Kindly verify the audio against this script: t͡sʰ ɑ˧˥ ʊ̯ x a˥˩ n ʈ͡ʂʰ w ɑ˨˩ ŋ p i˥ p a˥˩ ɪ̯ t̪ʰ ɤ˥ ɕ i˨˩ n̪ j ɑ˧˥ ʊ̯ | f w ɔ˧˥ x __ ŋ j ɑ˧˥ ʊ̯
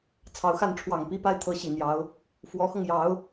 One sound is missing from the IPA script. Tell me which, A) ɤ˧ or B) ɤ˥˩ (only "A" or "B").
A